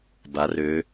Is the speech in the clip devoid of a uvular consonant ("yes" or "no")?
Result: yes